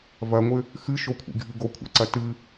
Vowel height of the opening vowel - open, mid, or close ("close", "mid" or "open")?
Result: open